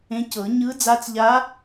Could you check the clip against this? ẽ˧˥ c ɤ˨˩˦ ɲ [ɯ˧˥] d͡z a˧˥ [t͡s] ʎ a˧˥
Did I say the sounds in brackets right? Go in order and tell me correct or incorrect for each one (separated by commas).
correct, correct